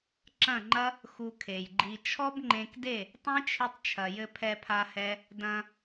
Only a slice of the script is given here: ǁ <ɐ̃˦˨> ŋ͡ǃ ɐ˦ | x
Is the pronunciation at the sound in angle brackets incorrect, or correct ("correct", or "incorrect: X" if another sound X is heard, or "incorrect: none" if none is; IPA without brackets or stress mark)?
correct